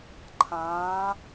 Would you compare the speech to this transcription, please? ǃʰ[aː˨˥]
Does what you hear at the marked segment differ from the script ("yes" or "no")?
yes